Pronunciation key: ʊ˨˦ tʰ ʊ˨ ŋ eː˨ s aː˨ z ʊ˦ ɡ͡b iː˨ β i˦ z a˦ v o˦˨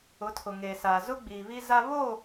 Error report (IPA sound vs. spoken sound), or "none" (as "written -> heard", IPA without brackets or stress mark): v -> β